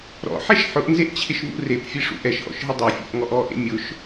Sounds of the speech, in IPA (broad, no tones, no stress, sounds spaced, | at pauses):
ɾ ɔ̰ ħ ɛ ʃ ħ ʊ ʔ n z e ʔ t͡ɕʰ ɪ ʃ v ṵ r e p fʲ e ʂ ṵ ʔ ɛ ʃ ʔ ɔ̰ ʃ ɦ ɪ dˤ e fʲ ḛ ʔ ŋ ɔ ʔ ɔ ʔ ḛ mʲ ʊ ʃ